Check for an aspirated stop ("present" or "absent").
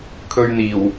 present